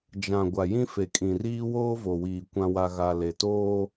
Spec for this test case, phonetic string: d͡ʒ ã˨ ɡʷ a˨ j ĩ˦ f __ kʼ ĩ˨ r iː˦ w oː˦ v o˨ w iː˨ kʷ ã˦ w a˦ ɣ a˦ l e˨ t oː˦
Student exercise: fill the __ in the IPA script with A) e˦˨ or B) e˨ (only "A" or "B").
B